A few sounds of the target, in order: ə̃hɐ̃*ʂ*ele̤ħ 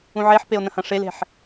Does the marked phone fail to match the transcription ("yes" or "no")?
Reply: no